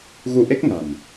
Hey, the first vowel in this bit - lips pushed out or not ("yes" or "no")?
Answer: yes